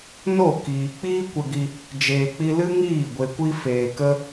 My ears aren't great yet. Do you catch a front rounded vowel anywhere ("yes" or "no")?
no